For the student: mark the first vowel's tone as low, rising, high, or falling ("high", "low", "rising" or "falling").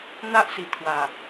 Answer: high